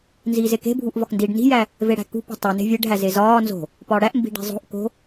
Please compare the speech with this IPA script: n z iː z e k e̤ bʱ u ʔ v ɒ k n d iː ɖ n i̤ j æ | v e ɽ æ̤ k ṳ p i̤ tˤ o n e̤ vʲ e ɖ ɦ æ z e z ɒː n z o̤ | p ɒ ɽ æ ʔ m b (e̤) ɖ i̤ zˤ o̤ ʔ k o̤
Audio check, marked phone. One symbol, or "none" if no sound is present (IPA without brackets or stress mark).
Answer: i̤